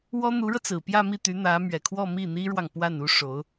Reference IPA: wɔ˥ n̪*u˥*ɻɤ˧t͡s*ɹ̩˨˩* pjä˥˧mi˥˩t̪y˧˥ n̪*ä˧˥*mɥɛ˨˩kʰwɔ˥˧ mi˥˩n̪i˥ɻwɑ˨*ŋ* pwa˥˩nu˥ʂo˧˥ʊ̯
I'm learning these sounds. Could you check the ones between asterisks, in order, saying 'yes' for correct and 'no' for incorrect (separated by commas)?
no, yes, yes, yes